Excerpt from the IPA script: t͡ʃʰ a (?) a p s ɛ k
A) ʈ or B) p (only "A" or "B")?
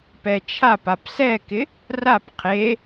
B